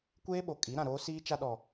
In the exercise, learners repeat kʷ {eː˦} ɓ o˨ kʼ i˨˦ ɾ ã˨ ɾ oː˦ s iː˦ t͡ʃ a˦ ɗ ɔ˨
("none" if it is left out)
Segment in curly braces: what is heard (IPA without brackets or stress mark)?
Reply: eː˦